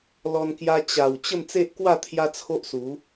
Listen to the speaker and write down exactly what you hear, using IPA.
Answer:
l ɔ˧ n k j a˧ t͡ɕ a˨˩ w t͡ɕ ə˥˧ m t͡s e˦ ʔ k w a˥˧ t̪ʰ j a˦ t͡sʰ o˦ ʔ s u˨˦

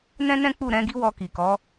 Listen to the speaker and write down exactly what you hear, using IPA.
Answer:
n ɛ̃˦ n ɛ̃˦ k͡p u˦˨ ɾ ɛ̃˨˦ ɡ i˦ w ɔ˧ k i˨ k ɔ˨˦

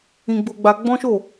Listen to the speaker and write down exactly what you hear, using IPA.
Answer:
ĩ˧ ɡ͡b o˧ ɡ͡b a˧ ɡ͡b ɔ̃˦ ʃ o˦˨

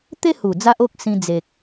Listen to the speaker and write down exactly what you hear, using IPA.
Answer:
t̪ e˦ h u˨˩ d͡z a˦ ʔ o˦ k̚ s ĩ˧ d͡z e˨ k̚

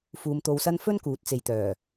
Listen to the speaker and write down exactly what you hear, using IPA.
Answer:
f uː˨˧ m t̪ o˧ w s ɐ˥ n f ɵ˥ n k uː˨˥ t̚ t͡s e˨ j t̪ œː˨˩

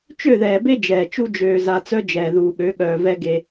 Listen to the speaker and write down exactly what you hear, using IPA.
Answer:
t͡ʃ ø˦˨ ð ɛː˨ b e˦ d͡ʒ ɛː˨ t͡ʃ u˦ d͡ʒ øː˨ z a˨ t͡s œ˦ d͡ʒ ɛː˨ ð uː˨ ɠ ø˨˦ ɠ œː˨ v ɛ˦ ɡ e˦

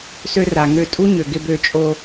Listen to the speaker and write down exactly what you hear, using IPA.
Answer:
s ø˧ r a˨ ŋ ø˧ tʼ u˦ ɲ ø˨ ɡ ɪ˧ b ø˧ t͡ʃʼ o˧

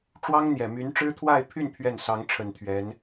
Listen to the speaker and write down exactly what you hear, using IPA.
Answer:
ʈ͡ʂ w ɑ˥ ŋ n̪ j ɛ˨˩ m y˧˥ n ʈ͡ʂ ɻ̩˥ t̪ʰ w a˥˧ ɪ̯ pʰ y˥˧ n pʰ ɥ ɛ˥˩ n s ɑ˧˥ ŋ ʈ͡ʂʰ ə˨˩ n t̪ʰ ɥ ɛ˧˥ n

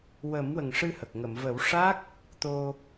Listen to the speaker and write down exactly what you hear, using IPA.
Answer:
w ə˨˩˦ m w ə˨˩ ŋ ʂ ɨ˧ h ə˨˩ k̚ ŋ ə˨˩˨ m v ə˨˩˦ w ʂ a˦˥ k̚ | t̪ o˧

